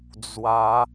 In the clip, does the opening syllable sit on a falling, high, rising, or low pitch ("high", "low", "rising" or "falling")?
rising